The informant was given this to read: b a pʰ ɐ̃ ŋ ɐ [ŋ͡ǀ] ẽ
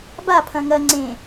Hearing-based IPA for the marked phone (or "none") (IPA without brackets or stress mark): ŋ͡ǀ